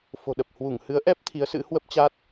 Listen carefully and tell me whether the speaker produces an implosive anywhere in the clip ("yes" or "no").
yes